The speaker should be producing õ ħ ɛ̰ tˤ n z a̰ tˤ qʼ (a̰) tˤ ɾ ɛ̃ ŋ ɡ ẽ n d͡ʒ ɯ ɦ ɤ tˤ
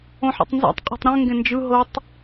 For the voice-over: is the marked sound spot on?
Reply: no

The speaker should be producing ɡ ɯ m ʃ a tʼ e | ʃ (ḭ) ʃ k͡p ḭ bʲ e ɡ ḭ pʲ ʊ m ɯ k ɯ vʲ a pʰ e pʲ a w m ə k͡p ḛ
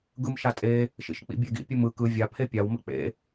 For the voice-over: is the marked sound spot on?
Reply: yes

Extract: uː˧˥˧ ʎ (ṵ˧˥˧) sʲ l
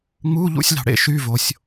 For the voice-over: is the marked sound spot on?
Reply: yes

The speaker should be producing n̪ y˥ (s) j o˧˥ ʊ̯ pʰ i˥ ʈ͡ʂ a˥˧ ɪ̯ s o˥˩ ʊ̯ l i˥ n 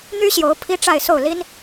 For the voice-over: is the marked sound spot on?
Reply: no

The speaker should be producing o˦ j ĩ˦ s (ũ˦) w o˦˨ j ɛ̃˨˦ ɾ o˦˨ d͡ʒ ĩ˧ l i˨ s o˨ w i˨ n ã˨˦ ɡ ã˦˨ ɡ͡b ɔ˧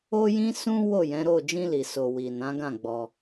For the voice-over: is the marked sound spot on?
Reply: yes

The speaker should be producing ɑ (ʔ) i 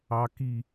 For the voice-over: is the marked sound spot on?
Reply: no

